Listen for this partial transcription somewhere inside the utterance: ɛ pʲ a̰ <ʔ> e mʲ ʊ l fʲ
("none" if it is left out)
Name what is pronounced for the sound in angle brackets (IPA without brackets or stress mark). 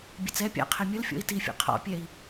qʰ